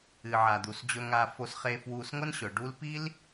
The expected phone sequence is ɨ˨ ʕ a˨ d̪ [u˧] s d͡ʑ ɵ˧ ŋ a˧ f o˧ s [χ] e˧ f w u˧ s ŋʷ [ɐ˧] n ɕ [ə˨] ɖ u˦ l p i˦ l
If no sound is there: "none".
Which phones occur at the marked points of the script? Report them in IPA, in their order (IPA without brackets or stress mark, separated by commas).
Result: u˨, χ, ɐ˦, ɵ˨